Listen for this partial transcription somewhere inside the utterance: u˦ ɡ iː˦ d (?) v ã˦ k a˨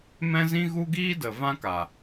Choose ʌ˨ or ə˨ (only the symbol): ə˨